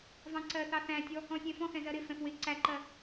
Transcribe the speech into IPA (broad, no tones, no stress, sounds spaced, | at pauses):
v ɑ̃ ǀ ɜ θ ɑ θ æ̃ tʲ ɔ | ɔ̃ sʲ ɛ̃ f ɔ̃ x ɛ̃ z ɜ ɾ ɪ f ɛ̃ f w ɪ ǀ æ ǃ ɜ